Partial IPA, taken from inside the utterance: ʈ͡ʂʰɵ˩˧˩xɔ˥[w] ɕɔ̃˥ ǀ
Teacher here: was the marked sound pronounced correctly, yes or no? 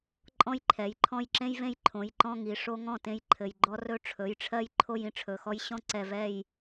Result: no